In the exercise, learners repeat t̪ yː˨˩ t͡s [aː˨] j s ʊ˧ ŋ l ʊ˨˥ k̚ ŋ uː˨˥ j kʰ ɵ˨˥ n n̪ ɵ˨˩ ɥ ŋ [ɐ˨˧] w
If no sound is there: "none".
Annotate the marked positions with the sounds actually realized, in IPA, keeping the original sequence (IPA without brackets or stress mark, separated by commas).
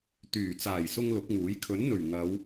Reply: aː˨˩, ɐ˨˧